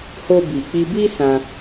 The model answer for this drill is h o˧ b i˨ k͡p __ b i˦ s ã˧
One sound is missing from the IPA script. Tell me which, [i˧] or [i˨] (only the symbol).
i˧